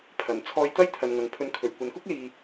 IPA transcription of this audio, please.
pʰ ɐ˨˩ n t͡sʰ ɔː˧ j t̪ ɐ˥ j t̪ʰ ɐ˨ n ŋ ɐ˨ ŋ pʰ ɵ˧ n kʰ ɵ˨˩ ɥ kʷ ɐ˨ n k ʊ˥ k̚ l iː˨

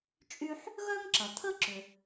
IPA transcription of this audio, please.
t͡ʃʼ y˥ ħ | ɣ œ˥ ŋ ǁ ɐ˩ t̪ʰ ə˥ ǁ ʏ˩

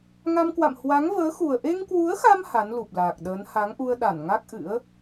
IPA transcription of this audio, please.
ŋ a˧ m k w a̰˧˨ m h w a˨˦ ŋ v əː˨˦ x u˨˩ ə̯ ʔ e˧ ŋ k w u˨˦ ə̯ x a˧ m h a˨˦ n l u˨˩ p̚ l aː˨˩ k̚ ɗ əː˨˦ n h a˨˦ ŋ ʔ u˧ ə̯ ɗ a˧˩ n ŋ a˦˥ k̚ ʔ ɨ̰˧˥ ə̯

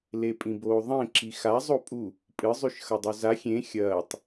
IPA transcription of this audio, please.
l e pʼ ĩ b oː ðˤ ẽ ǁ i x a zˤ o pʼ u | pʼ ɨ zˤ ʉ ʃ x ɐ dˤ o z a xʲ ẽ xʲ ɐː tˤ

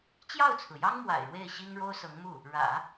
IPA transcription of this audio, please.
t͡ɕ j ɑ˥˩ ʊ̯ t͡sʰ ɹ̩˩ j ɑ˥ ŋ m w a̰˨˩ ɪ̯ ɻ w e˥˩ ɪ̯ ɕ i˥ ŋ ɻ o˥ ʊ̯ s ɤ˧˥ ŋ m u˥˩ | ɻ ä̰˨˩˦

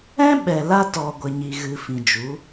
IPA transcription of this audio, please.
ɛ̃˦ ɓ ɛ˨ l a˧ t ɔ˨ ɡʷ ə˨ ɲ i˨ ɣ ɨ˨ f ĩ˨ d͡ʒ u˨˦

